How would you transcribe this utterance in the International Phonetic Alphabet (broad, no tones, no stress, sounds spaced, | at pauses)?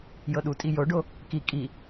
j ɤ ɗ u tʼ i j o ɖ o | k i kʼ i